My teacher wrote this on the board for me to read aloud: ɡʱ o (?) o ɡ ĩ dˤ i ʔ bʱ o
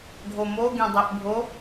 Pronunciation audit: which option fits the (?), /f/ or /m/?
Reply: m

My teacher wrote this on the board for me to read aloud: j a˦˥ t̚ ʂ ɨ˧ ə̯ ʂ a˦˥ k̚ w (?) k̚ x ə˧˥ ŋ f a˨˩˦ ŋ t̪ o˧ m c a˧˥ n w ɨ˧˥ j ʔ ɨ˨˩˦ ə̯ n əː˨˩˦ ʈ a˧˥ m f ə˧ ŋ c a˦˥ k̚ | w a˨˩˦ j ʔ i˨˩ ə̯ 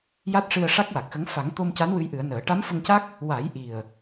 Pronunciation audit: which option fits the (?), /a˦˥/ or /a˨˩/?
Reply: a˨˩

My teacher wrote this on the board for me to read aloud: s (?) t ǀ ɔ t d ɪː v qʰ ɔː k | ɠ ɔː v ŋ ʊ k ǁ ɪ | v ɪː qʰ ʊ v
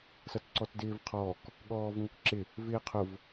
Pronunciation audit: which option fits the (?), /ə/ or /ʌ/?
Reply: ʌ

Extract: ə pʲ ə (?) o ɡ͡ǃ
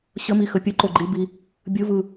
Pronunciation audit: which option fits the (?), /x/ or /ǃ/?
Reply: ǃ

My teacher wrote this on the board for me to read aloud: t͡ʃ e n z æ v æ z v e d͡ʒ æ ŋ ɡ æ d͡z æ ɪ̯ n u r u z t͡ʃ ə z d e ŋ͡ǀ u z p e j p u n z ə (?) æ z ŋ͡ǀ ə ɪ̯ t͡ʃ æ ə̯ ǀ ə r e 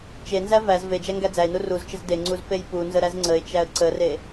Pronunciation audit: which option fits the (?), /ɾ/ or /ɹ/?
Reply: ɾ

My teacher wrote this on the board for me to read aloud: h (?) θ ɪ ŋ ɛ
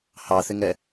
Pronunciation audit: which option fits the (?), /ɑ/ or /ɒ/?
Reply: ɑ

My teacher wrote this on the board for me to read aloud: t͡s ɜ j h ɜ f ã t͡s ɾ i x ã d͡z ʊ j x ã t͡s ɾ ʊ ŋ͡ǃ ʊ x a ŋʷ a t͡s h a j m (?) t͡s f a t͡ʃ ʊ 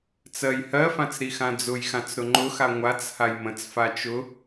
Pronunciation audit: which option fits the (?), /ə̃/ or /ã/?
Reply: ə̃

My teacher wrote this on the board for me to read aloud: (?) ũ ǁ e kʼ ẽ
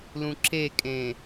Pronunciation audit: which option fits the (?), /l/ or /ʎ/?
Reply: l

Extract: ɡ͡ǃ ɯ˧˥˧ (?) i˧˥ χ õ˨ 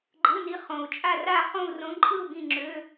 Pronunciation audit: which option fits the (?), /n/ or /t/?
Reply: n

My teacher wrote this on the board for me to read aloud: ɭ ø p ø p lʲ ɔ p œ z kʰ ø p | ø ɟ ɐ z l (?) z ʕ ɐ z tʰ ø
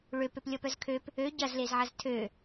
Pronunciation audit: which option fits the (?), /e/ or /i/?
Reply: e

